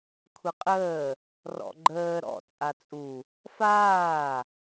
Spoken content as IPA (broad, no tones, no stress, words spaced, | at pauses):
kʷʰɪqʼəː | rɔ̰ɡ͡ǃəː ɾɔ̰ t͡sʼat͡sʼu | faː